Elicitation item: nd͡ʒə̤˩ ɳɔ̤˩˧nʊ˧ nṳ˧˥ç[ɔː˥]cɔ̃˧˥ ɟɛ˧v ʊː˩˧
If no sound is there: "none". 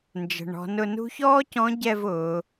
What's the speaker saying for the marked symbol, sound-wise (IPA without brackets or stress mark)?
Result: ɔː˥